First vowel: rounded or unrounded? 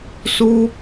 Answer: rounded